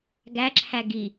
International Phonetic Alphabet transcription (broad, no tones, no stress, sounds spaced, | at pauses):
ɡ æ ǁʰ æ ɡ i